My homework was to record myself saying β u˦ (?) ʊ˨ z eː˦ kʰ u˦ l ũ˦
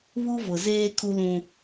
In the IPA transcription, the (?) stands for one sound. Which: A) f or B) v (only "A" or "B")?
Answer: B